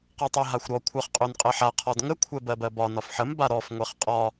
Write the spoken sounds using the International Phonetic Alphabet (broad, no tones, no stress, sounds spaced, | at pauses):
q a tˤ ɜ ɦ a xʷ ɾ ɔ kʷʰ ɜ χ qʼ o n qʼ ɜ ħ a qʰ ɔ d ŋ ə kʷʰ ɛ b ɜ b ɜ b ɒ n ɒ f ħ ə m b a ɾ ɔ f ŋʷ ɛ χ qʼ ɒ